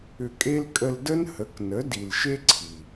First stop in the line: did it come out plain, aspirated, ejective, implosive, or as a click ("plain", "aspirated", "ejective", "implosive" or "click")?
ejective